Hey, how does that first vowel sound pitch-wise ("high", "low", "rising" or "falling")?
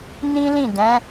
high